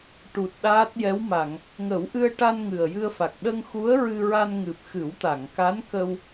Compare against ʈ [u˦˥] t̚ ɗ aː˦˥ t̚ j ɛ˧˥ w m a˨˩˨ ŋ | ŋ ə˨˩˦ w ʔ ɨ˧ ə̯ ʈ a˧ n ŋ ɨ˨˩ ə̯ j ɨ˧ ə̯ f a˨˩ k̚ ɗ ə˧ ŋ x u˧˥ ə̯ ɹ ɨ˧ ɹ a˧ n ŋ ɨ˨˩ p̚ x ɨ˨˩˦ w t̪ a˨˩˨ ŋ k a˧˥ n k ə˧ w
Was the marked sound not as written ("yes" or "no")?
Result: yes